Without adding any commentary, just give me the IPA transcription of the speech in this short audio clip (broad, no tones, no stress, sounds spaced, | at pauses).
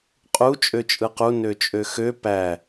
qʼ u t͡ʃʼ ø t͡ʃʼ ɯ q u n ø t͡ʃʼ ø x ø p æ